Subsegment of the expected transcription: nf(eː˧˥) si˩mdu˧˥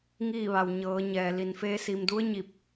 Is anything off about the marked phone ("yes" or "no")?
no